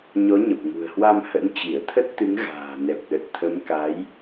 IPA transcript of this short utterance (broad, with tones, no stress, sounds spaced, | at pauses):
ɲ ɔ˨˦ ɲ ə˨˩ p̚ ŋ ṳ˨˩ ə̯ h w a˧ m h ə̰˧˥ n t͡ɕ i˧˩ ə̯ t̪ʰ ə˦˥ t̚ t̪ ɨ˨˦ ŋ ɣ a̤ː˨˩ n ɛ˨˩ p̚ ɗ ə˨˩ t̚ t̪ʰ ə˨˦ m k a˨˦ j